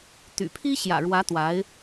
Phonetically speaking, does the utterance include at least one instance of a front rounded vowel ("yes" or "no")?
yes